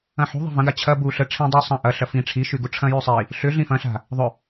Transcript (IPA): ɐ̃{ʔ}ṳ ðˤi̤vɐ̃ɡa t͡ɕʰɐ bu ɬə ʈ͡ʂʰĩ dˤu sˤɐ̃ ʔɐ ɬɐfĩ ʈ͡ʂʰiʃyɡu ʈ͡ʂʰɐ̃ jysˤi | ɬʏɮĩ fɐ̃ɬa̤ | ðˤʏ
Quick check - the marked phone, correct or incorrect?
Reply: incorrect